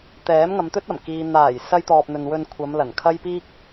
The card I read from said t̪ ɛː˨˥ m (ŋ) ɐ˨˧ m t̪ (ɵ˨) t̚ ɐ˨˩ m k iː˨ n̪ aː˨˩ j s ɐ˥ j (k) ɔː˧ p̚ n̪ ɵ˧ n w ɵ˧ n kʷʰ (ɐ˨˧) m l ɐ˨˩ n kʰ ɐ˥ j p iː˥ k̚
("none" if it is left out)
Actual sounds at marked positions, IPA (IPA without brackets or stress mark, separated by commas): ŋ, ɵ˥, t̪, ɐ˨˧